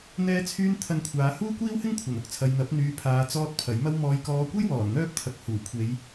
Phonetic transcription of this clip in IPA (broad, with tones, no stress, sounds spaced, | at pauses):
n̪ ɛː˥ t͡sʰ yː˥ n t̪ʰ ɐ˧ n kʷʰ aː˨˧ h uː˥ kʷ iː˥ w h ɪ˥ ŋ kʷʰ ɐ˨˩ n ʊ˧ k̚ t͡sʰ ɐ˨ j n̪ ɐ˨˥ p̚ n̪ yː˨ pʰ aː˨ t͡s ɔː˧ t̚ pʰ ɐ˨˥ j m ɐ˥ w m ɔː˨ j k ɔː˨˧ kʷ ɐ˥ j w ɔː˨˩ n n̪ œː˥ p̚ t̪ʰ ɐ˨ k̚ h uː˨˩ kʷʰ e˨˧ j